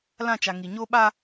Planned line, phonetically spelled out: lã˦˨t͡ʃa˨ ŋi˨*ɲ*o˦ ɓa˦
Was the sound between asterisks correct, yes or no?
yes